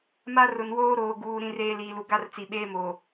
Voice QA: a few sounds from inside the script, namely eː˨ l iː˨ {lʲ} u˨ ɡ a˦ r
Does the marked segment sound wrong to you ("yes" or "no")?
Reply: yes